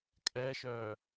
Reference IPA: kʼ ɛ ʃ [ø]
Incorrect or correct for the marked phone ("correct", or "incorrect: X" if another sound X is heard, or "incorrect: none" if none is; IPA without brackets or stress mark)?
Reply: incorrect: œ